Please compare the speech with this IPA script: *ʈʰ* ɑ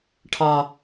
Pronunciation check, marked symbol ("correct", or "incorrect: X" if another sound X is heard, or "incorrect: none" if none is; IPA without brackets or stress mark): correct